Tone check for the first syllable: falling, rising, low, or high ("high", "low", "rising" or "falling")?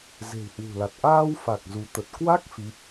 low